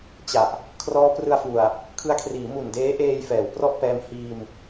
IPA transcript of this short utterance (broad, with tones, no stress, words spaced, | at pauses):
t͡ɕa˨˩ʔ | kʰrɔː˦˥prɯ˧a̯fu˨˩a̯ | kʰɯ˦˥a̯kʰriː˩˦ mu˨˩ndeː˦˥ʔeː˧j fɛː˩˦wprɔ˥˩ʔpɛː˧m hiː˧m